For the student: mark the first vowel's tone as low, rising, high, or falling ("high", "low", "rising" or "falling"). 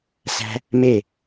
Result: high